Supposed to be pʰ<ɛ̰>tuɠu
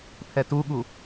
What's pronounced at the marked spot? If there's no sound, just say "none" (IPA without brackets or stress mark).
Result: ɛ